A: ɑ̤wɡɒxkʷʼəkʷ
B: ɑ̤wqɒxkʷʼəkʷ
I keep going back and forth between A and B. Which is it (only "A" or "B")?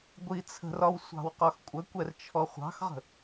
B